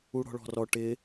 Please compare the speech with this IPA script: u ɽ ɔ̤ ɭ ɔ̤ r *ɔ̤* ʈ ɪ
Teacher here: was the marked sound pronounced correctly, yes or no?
no